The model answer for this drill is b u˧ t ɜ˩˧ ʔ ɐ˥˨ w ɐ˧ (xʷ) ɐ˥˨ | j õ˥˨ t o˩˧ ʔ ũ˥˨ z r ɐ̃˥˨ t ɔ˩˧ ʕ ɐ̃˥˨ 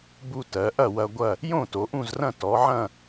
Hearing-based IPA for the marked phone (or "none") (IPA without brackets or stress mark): ɡʷ